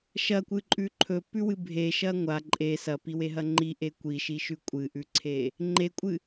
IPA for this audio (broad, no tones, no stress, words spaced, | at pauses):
ʃɐkʷɨǃʼʉ ǃʰɵpʉwɨ bʱeʃɐ ŋʷa ǃʼe sɐpiweɦɐ ŋ͡ǃiʔe kʷiʃiʃʉ kʷʼɨʔʉǀʰe | ŋ͡ǃekʷʼɨ